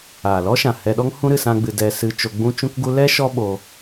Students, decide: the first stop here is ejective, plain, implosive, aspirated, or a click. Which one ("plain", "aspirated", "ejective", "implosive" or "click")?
implosive